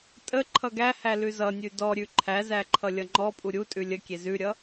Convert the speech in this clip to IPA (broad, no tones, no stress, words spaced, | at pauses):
tʼə ǃʰʌɡæhæ lʉzʌnʲʉ dɔɾʲʉ ǃʰæzæ ǃʰʌlʲʌŋ͡ǃɔpʼu ɾʲutʼʉ lʲəkʲe zʉɾʲʌ